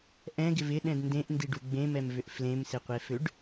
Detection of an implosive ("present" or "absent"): present